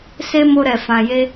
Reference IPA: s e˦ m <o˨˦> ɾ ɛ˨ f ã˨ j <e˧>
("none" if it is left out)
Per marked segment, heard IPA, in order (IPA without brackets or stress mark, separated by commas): o˧, e˧